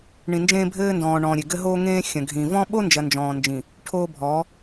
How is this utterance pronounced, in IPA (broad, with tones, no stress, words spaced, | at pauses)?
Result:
ɳĩ˨nd͡ʒẽː˦bʱɘː˦ndɔ̃ː˨ ɳɔ̃ː˨ɾʲe˨ɡɘ˦ ɦoː˦ŋẽː˦xʲɐ̃˨ɡʱĩ˨ vɔ̃˦ ɓo˦nd͡ʒɐ˨ nd͡ʒɔ̃ː˨nd͡ʒĩ˨ | ʈʰoː˦ bʱɔ˨˦